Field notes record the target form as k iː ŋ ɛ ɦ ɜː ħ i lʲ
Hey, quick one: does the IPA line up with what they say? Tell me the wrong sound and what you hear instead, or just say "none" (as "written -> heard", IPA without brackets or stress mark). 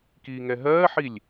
none